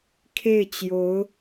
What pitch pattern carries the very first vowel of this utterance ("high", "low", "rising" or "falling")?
falling